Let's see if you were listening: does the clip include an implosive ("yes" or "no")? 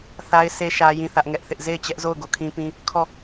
no